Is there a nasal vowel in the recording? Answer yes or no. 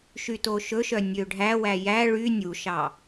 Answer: no